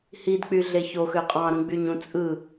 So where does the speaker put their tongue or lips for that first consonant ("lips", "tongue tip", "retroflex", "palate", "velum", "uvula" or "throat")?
throat